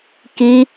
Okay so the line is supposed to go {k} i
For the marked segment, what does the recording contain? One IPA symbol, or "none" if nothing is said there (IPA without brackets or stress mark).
k